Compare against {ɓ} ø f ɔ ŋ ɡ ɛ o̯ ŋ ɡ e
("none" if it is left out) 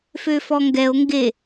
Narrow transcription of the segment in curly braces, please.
f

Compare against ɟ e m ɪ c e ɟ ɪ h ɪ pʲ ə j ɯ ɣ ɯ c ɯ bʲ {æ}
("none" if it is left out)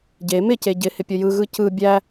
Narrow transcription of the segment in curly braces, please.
æ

